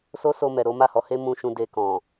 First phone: s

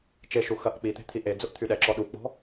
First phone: t͡ʃ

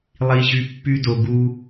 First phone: lˠ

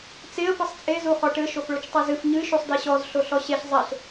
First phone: t͡s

